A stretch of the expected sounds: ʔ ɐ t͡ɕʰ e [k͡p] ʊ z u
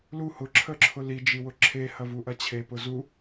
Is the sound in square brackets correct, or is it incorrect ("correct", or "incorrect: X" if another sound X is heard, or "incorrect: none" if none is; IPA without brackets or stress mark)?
incorrect: p